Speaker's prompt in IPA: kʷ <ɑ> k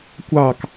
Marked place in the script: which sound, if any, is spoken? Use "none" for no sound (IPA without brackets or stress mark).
ɑ